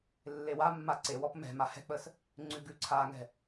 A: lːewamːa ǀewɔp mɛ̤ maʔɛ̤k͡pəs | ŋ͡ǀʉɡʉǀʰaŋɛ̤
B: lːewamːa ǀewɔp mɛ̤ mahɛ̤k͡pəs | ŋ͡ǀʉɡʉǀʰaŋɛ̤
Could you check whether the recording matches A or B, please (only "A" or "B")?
B